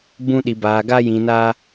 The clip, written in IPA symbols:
b ũ˦ ɗ i˧ b aː˧ ɡ a˦ j ĩ˧ n aː˦

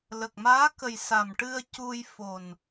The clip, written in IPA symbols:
l ə˨˩ k̚ m aː˧˥ k ə˨˩ j s a˨˩ m ʈ ɨ˧ ə̯ c u˧ j f o˨˩ n

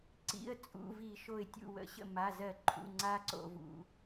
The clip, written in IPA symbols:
ǀ ḭ˩˧˩ ə̯ t͡sʼ ṵ˩˧˩ v i˧˩˧ ʃ o˧˩ ɪ̯ tʲ ṵ˧˩ w ə̰˧˩˧ ɕ ə̰˧˩ m a˩˧˩ z ɜ˧˩˧ ǃʰ ṵ˩˧˩ ŋ͡ǀ a˦ ǀ o̰˧˩˧ v ṵ˩˧˩

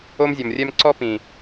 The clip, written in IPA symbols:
o˦ m zʲ ɔ˨ m rʲ ɛ˦ m ǀ ɔ˦ p ĩ˨

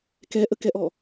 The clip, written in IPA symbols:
k ɛ ʔ ə k ɛ ʔ ɔ

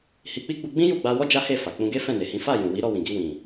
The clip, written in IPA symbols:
h i˧ k͡p i˦ ɡ͡b u˧ ɡ͡b ĩ˦ j u˦˨ ɡ͡b a˧ w ɔ˦ d͡ʒ a˦ h e˦˨ f a˨ k͡p ũ˧ ɡ e˦ f ɛ̃˦˨ n e˨ h ĩ˨˦ f a˦˨ j ũ˨ w i˨˦ ɾ ɔ˦˨ w ĩ˨ ɡ i˧ w ĩ˨

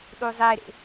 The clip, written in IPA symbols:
ɗ u zˤ e ɾ ḛ

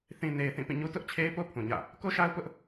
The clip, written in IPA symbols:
θ ĩ˨ n e˨ ɪ̯ θ ĩ˦˨ p ĩ˦˨ ɲ u˦ t ʊ˦ ʔ t͡ɕʰ e˦ ɪ̯ p o˦ pʰ ũ˨ ɲ ä̰˦˨ | k o˦ ʃ a˦ ʊ̯ p ʊ˦ ʔ

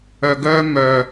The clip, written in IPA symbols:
œ˨ ɡ œ˧ m œ˨

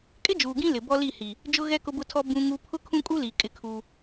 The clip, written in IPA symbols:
kʼ ɪ˦ d͡ʒ uː˨ ɡ ĩ˦ l ɪ˨ b ɔ˦ l i˦˨ h i˨ | d͡ʒ ʊ˦ ɣ ɛ˦ k ʊ˦ b ʊ˦ tʰ ɔ˦ b ũ˦ ŋ u˦ pʰ ʊ˦ kʰ ũ˦ kʼ u˦ l i˨ kʼ ɪ˦ kʰ u˦

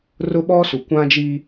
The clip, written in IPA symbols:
r ʊ˦ ɓ ɔ˦ s u˨ kʷ ã˦ d͡ʒ i˦

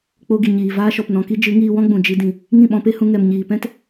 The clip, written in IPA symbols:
k͡p o˧ ɡ i˨ ɲ iː˨ v aː˧ ʃ ɔ˨ p n ɔ̃˨ k i˧ d͡ʒ ɨ˨˦ ŋ iː˧ w ɔ̃˦ ɡ͡b ũ˨ d͡ʒ i˧ d ĩ˨ | ŋ ĩ˦˨ ɓ ɔ̃˧ p e˦ h ũ˧ ŋ ɛ˨ m ɲ iː˨ p ɛ̃˦ t

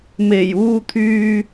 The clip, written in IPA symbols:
m e˨˩ j uː˧ t̪ʰ yː˧

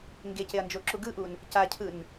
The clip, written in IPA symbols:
ŋ ɡ e c e ɐ̯ n d͡ʒ o ǁ u ɡ ɯ ʔ u n | c a cʰ ɯ n

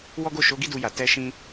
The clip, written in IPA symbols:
w ɔ˦ ɡ o˦˨ ʃ o˨˦ ɡ i˦ d u˧ j a˨ t ɛ˧ ʃ ĩ˦

